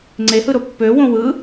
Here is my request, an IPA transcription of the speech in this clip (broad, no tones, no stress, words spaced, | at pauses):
ŋ͡ǀehɯɾo pːø wõwɯ